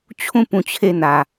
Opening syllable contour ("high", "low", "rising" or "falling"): falling